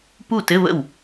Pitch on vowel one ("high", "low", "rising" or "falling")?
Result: falling